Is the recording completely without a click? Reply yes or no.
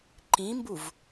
no